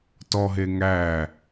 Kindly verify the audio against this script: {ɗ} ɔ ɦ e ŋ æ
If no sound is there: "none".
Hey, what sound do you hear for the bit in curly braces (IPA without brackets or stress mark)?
t